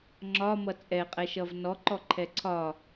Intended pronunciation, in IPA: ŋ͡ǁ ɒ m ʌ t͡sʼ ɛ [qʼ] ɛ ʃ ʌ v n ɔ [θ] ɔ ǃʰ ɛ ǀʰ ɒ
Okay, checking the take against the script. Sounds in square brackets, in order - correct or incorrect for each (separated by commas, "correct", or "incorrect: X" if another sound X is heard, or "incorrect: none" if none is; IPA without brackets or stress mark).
correct, incorrect: ǃ